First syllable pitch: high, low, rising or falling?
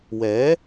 rising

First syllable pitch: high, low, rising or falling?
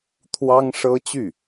high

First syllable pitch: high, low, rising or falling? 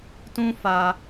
high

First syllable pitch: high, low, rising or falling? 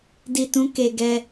low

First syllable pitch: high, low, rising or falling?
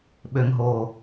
low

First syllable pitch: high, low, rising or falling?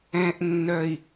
low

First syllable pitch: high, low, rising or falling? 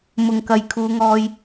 low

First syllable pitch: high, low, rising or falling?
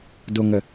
low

